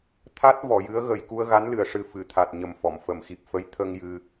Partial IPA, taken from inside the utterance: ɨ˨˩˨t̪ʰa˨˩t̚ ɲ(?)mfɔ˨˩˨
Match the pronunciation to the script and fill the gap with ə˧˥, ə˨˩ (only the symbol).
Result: ə˨˩